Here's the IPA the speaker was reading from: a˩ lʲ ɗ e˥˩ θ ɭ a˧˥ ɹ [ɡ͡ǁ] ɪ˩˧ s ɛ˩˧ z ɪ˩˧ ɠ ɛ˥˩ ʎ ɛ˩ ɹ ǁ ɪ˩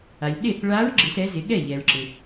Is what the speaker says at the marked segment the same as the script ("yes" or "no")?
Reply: yes